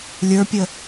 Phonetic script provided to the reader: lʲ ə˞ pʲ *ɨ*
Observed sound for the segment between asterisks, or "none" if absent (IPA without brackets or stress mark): ə